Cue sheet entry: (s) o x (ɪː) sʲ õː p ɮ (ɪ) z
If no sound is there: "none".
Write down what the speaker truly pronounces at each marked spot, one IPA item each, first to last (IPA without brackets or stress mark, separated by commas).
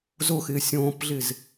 z, ɪː, ɪ